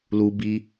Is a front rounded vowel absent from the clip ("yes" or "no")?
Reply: yes